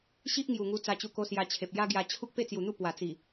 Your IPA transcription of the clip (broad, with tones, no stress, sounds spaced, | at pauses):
ɕ i˦ ʔ ŋ j u˨˩ ŋ u˧ t͡s a˧ t͡ɕ u˧ k o˧ s j a˧ t͡ɕʰ e˨ p̚ j a˦ ɡ j a˧ t͡ɕʰ u˦ k̚ p e˥˧ t͡s j u˨˩ n̪ u˥˧ p w a˨˩ t͡s i˨˩